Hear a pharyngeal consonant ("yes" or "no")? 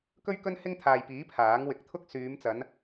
no